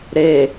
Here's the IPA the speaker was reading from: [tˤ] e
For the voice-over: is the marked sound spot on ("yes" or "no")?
no